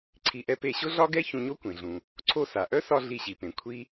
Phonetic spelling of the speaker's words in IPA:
ǀʰi˧ʔɛ˥ pe˧ɕʊ˥ɮɒ˥ɡɛ˥ çũ˧ɲo˥ kʷẽ˩ɮũ˩ | ǀʰo˧sa˩ʔœ˥sɒ˧ ɮi˧ɕi˩pẽ˩ kʷʰi˥

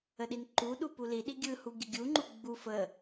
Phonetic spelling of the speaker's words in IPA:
əɗinǃuɗu puliɗi ɡʲɯhu ɡʲəɡʲuŋ͡ǃu ɡ͡bu fə

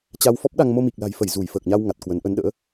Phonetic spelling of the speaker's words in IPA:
t͡ɕa˧wfɔ˦˥p̚ɗa˧ŋ mo˧mi˨˩k̚la̤˨˩jfə˧˩j zu˧˩jfəː˨˩k̚ɲa˧w ŋa˨˩t̚kwə˨˦n ʔə˨˦nɗə̰ː˧˥

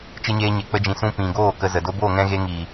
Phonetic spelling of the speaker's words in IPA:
t͡ʃɨ˦ɲeː˦ɲe˧ k͡pə˧d͡ʒĩ˨sũ˧ pĩ˨ɡoː˦˨ kə˧zə˨ do˧boː˦˨ŋɛ̃˧ɣe˧ ŋiː˨

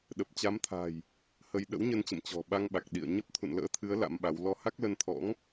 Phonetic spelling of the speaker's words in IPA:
ɗə˨˩p̚t͡ɕa˨˦mt̪ʰa̤˨˩j | hə˧j ɗə̰˧˥wɲə˧nt͡ɕə̰˧˨m t͡ɕɔ̤˨˩ɓa˧ŋɓa˨˩k̚ ɗḭ˧˨ə̯ ɲə˦˥p̚t̪ʰṵ˧˨nlə̰ː˧˥t̪ʰɨ˨˦ə̯ la̰˧˥mɓa˨˦w lɔ˧ha˦˥k̚lə˧nt̪ʰɔ̰˧˥ŋ

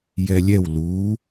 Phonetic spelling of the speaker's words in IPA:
jɛlʲɛw lu

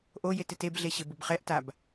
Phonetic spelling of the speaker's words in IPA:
ʔo jetɪtebɮe ɕɪbʊbχɛʔtab

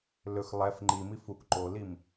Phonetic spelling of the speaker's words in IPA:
lɵx lˠɛf ŋ͡ǃimi fuk ǃolim

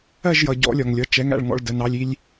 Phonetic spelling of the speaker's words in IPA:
ɜ˥˨ʒjʌ˩ ɟɔ̰˨˩˦lʲɒ˩ŋlʲʌ˩˧˩ t͡ʃɛ˨˥ŋ æ̰˩˧˩ɭŋɔ̰˥˨ɭdə˩˧˩ nɑ˩˧˩lʲi˥˨lʲ

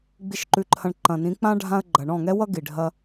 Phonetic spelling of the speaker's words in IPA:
ɡ͡bi˨ʃǃʉ˨ǃʰɐ̃˨ɳ ǃɐ̃˨nĩ˨˦k͡pã˦ ɖʱã˦ə̯ɡ͡ǃɐ˨ ɳɔ̃˦˨ŋɛ˦wʌ˦ ɡi˨ ɖʱɐ˦

